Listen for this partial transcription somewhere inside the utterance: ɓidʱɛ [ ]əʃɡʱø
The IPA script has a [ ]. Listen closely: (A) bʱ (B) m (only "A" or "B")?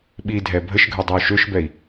A